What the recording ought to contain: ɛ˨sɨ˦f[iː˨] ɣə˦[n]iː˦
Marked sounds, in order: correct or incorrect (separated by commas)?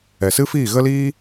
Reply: incorrect, incorrect